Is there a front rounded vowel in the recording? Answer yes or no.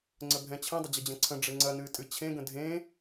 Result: no